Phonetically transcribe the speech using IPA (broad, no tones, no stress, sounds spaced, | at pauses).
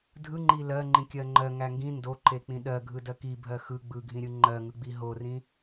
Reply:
dʱ ɯ ŋ͡ǃ i l ɜ ŋ͡ǃ ĩ kʲ ɜ ŋ͡ǃ ɜ ŋ æ ŋ ɡ ĩ n d o ǃ e k͡p ĩ ɗ ɜ ɡʱ ɯ d ɜ k i bʱ ɜ x ɯ ɡ͡b ɯ ɡʱ ĩ ɾʲ ɯ ŋ͡ǃ ɜ ŋ ɯ ɡ͡b i ɦ o r ĩ